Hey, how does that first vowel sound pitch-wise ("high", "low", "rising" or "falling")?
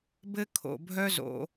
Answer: high